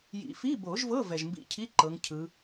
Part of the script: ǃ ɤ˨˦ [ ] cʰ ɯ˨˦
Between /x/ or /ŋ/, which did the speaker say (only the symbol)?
ŋ